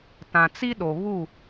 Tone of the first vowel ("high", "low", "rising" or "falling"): low